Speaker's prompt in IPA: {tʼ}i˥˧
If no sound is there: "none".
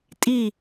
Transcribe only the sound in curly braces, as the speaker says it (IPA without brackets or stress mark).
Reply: tʼ